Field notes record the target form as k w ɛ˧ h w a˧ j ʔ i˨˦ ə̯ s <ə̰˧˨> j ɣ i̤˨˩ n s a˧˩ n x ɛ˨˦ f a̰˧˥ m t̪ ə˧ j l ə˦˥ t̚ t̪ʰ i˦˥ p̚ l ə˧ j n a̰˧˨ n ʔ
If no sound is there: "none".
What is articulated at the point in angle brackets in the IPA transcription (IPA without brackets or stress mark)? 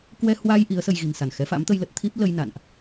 ə˧